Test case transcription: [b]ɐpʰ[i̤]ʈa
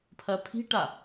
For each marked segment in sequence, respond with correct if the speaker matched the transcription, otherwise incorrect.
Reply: incorrect: pʰ, correct

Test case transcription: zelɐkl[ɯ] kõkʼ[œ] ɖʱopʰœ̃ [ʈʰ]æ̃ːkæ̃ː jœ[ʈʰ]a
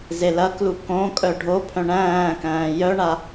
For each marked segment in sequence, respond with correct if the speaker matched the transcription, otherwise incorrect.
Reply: incorrect: u, correct, incorrect: ɳ, incorrect: ɳ

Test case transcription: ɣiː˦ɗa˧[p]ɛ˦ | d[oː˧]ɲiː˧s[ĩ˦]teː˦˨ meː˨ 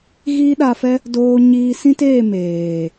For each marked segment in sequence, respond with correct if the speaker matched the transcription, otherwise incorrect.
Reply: incorrect: f, correct, correct

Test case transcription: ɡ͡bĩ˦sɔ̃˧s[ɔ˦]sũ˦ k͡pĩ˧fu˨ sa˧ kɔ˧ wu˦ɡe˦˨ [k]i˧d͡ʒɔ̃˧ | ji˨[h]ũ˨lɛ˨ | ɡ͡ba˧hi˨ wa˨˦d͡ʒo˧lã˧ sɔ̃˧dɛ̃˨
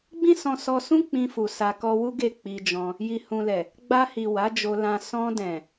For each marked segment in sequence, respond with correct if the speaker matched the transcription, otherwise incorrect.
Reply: incorrect: ɔ˧, incorrect: k͡p, correct

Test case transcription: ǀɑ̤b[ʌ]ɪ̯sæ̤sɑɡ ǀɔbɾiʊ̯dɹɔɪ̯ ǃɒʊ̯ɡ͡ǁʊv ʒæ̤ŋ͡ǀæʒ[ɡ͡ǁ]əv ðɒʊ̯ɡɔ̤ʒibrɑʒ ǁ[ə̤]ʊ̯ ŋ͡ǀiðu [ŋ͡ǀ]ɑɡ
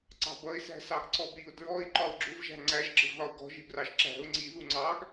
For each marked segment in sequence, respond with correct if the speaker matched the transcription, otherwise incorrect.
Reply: correct, correct, incorrect: æ̤, correct

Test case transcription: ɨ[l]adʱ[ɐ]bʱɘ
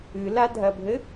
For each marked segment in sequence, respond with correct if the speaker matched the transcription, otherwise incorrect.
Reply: correct, correct

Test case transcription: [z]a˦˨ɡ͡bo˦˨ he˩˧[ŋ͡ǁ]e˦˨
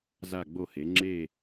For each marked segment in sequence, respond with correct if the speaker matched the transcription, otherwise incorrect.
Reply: correct, correct

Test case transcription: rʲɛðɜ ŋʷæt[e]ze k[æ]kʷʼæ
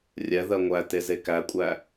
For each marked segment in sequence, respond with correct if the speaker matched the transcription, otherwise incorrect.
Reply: correct, correct

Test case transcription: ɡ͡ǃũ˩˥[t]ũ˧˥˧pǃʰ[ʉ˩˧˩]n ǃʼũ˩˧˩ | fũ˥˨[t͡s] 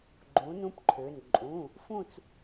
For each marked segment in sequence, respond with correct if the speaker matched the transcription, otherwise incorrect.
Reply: incorrect: n, incorrect: ø˩˧˩, correct

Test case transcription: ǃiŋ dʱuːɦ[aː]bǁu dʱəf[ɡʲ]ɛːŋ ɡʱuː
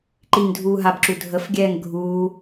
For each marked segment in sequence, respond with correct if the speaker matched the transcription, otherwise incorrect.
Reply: incorrect: a, correct

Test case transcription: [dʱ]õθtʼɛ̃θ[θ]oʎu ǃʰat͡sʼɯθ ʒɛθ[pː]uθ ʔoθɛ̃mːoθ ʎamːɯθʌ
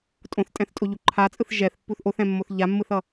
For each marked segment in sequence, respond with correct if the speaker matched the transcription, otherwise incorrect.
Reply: incorrect: tʼ, incorrect: tʼ, correct

